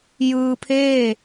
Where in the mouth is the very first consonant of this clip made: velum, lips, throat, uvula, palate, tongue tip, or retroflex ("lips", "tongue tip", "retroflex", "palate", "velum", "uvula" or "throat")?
palate